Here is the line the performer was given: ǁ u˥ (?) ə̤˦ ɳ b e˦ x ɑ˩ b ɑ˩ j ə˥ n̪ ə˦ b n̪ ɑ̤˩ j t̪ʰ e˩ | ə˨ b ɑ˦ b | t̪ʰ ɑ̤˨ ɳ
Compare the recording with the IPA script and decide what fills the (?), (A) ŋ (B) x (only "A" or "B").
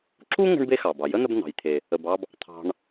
A